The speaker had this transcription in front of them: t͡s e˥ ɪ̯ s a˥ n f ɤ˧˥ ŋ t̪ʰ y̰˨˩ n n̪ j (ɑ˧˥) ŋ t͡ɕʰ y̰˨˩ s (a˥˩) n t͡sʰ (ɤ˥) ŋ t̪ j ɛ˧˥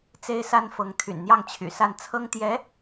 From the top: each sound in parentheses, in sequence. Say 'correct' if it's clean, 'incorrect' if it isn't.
incorrect, correct, correct

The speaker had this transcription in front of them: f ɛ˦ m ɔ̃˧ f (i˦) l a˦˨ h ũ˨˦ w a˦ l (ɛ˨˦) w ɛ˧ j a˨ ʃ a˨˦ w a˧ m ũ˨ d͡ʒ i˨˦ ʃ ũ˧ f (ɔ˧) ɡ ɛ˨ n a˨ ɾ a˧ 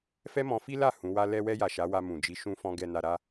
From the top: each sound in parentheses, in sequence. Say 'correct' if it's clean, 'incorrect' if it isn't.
correct, incorrect, incorrect

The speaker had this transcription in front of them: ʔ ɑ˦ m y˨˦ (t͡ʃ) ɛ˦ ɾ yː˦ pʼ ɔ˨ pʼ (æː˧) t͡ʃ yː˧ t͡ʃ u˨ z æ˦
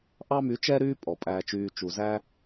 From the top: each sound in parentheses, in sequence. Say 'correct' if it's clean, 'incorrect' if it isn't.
correct, correct

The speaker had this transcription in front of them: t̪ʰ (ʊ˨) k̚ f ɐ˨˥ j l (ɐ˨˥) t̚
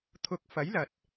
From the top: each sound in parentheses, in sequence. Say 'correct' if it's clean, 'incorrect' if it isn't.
incorrect, incorrect

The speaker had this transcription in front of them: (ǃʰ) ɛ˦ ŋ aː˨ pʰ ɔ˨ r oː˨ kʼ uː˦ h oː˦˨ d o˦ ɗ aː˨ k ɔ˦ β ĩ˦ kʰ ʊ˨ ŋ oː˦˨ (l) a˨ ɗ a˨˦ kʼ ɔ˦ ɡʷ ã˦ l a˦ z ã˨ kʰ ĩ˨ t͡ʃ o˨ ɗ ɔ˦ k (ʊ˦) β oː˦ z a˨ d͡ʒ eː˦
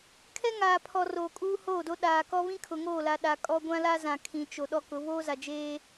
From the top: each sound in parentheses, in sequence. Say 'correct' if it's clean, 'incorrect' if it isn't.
incorrect, correct, incorrect

